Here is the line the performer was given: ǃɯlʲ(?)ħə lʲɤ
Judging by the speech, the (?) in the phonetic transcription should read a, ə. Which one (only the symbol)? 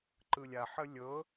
a